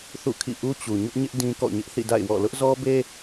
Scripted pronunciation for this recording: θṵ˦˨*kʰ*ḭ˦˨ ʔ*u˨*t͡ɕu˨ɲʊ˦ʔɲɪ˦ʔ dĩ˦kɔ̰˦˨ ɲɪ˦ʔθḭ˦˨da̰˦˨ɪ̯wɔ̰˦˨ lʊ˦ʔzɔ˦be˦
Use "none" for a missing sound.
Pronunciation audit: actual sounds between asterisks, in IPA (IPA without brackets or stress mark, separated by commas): kʰ, u˦